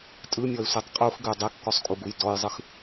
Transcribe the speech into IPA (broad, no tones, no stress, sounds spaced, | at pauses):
tʼ ɯ mʲ ɔ ɪ̯ sʷ e tˤ qʼ u x ɡ ʉ dˤ e kː ɔ sˤ kʼ u ɡ u j d ɔ j zˤ ɯ x